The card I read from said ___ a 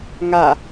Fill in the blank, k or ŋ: ŋ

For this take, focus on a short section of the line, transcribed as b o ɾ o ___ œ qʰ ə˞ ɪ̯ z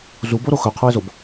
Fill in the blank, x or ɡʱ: x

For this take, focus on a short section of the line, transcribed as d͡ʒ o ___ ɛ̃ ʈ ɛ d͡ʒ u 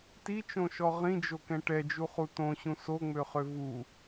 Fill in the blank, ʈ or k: k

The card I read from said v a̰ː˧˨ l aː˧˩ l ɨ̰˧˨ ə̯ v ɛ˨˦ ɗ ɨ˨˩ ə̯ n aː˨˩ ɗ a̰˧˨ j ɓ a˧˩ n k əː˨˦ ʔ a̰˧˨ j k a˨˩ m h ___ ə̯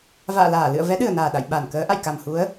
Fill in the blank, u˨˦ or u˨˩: u˨˦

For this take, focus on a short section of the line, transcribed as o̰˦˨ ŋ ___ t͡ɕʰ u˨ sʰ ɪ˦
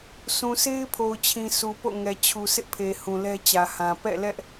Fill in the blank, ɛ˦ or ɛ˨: ɛ˨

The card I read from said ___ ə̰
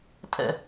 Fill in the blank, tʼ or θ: tʼ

